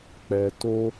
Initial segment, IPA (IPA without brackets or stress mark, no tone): k͡p